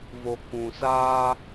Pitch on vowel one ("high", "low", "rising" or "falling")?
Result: low